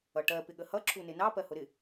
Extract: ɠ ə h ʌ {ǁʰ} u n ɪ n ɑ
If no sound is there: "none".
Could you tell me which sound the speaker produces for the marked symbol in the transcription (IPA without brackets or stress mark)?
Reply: ǁʰ